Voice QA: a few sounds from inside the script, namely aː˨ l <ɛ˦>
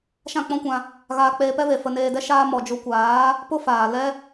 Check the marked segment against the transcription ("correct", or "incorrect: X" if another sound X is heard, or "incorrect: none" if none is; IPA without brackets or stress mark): incorrect: ɛ˧